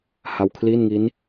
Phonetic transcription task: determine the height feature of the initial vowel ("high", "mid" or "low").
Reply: low